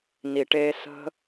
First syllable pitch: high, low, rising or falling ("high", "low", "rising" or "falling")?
low